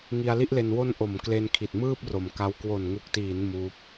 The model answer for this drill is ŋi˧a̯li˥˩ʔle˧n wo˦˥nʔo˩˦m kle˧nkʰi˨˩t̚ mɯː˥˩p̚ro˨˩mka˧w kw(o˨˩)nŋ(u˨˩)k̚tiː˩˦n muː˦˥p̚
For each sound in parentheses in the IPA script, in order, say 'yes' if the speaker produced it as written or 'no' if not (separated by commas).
yes, yes